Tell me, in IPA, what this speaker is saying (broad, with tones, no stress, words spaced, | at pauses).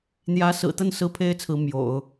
n̪jä˧˥ sɹ̩˨˩t̪ə˥˩n sɹ̩˥pʰe˥ɪ̯t͡sʰɹ̩˧˥ mjo̰˨˩˦ʊ̯